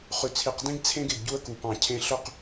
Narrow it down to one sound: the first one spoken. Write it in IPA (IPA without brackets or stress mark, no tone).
χ